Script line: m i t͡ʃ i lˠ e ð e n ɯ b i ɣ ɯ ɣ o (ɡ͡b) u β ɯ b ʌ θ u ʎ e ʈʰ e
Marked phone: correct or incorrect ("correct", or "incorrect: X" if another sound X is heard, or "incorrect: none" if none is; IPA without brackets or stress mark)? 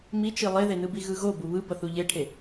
incorrect: b